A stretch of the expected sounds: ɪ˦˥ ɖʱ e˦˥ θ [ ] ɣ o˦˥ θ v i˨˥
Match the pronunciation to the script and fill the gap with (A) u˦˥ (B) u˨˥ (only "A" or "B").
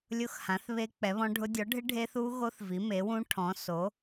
A